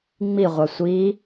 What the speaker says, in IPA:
ŋ͡m i ʁʷ æ sʷ i

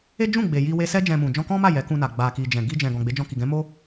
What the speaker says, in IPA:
e˦ d͡ʒ ũ˦˨ ɡ͡b e˨ j i˧ w e˧ s ɛ˦ d͡ʒ ɛ̃˧ m ũ˨ d͡ʒ ɔ̃˧ k ɔ̃˦ m a˦˨ j ɛ˨˦ k ũ˧ n a˨ ɡ͡b a˨ k i˨ d͡ʒ ɛ̃˨ ɡ i˧ d͡ʒ ɛ̃˨ ɡ ɔ̃˨ ɡ͡b e˨˦ d͡ʒ ɔ̃˧ k i˨ ɡ ɛ̃˨˦ m o˦

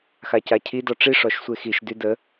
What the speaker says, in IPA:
x a c a cʰ i d ɔ ʈ͡ʂ i ʂ ɔ ʃ sʷ e x i ʃ d y d ə

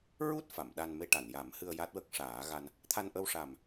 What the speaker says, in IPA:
ɹ u˦˥ t̚ f a˨˩˨ m ɗ a˧ n m e˧ ʈ a˨˩˨ n j a˨˩˦ m h ɨ˧ ə̯ j a˦˥ t̚ w ə˦˥ k̚ ʂ aː˨˩˦ ɣ a˧ n | t̪ʰ a˧ n ʔ ə˧ w ʂ a˨˩ m

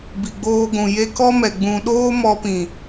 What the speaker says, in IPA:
b i˨ ɡ͡b oː˧ ɡʷ ũ˨ j e˦ k ɔ˦ m ɛ˨ ɡ͡b ũ˨ ɗ oː˦ m ɔ˧ p ĩ˨

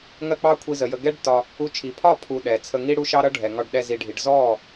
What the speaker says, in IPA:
ŋ ɜ˦ k͡p ɑ˦ kʷʰ i˧ z ə˨ j ə˧ ɡ ɛ˦ ɖ t ɒ˧ | u˧ t͡ʃʰ i˨ pʰ ɒ˦˨ pʰ u˧ ɗ ɛ˨ t͡sʰ ə˧ ŋ i˦ ɽ u˦ ʃ ɑ˦ ɾ ʌ˦ ɖʱ ɛ˨ ŋ ɒ˧ ɖ ɗ ɛ˧ z i˨ ɖʱ i˨ ɖ z ɔ˦˨

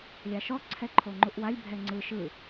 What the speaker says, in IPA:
lʲ a ʃ ɔ ǀʰ ɛ ǃʰ o ŋ͡ǃ u ʔ w a lʲ bʱ ɛ ŋ͡ǀ ɯ ʃ ɯ

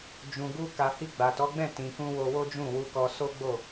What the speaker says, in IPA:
d͡ʒ ũ˨ ɡ u˧ k a˨ h i˧ ɡ͡b a˨ t ɔ˨˦ ɡ͡b ɛ̃˦˨ t ĩ˨ k ũ˧ w o˧ w o˦ d͡ʒ ũ˦˨ w u˧ k ɔ˧ s o˦ ɡ͡b o˦˨

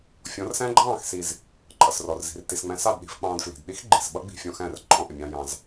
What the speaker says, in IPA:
fʲ ɔ̃˨˦ r s æ̃˦ ɡ͡ǃ ɑ̃ː˦˨ x s i˨ z | ǃʼ ʌ˨ s r ɔ˨ r z i̤˨ r t i˨ s ŋ͡m æ̃˧ s ɑ˦˨ d ɗ i̤˧ f k͡p ɑ̃ː˧ d f l i̤˨ d ɗ i˦ x ɡ͡ǃ i˨ s ɓ ʌ˦ ɡ͡b i̤˧ fʲ ɔ̃˧ x æ̃˦˨ r ǃʼ ɔ̃˧ ʔ ɪ˨ mʲ ɑ̃˧ j ɑ̃˧ z

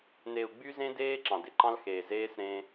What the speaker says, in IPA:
n e˨ u̯ ɡ͡b y˦ z ẽ˦ d eː˦ ǁ ɑ̃˨ d e˨ ǃ ɑ̃˦ l x eː˨ z eː˦ s ɾ ẽː˦

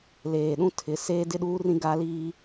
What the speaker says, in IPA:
l eː˨ ɗ ũ˦ tʰ ɪ˨˦ s eː˦ d ɪ˦ ɗ uː˦ r ĩ˦ ɡ a˦ l iː˦

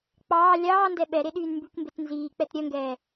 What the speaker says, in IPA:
k͡p ɑː lʲ ɑː n d ɛ ɓ ɛ ɾ e ɗ yː n m b y k m b e t n z iː k͡p ɛ t ɾʲ œ ŋ ɡ ɛː

